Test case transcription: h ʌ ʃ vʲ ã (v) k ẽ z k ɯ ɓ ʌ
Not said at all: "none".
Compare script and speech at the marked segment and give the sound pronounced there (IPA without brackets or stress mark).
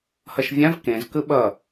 v